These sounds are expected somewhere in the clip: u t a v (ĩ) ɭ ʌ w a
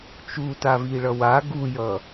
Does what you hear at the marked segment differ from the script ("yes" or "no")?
yes